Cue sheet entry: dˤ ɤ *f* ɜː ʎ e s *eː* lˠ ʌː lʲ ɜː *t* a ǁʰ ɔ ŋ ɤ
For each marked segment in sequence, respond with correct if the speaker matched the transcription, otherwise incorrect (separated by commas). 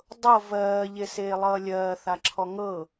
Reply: incorrect, correct, incorrect